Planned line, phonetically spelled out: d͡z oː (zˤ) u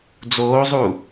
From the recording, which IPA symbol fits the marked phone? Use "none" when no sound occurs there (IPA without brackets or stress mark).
zˤ